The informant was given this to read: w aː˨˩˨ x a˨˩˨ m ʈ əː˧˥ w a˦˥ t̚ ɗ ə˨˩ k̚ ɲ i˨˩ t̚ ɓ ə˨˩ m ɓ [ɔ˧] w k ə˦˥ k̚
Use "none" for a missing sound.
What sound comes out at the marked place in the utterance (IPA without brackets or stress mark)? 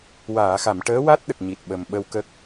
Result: ə˧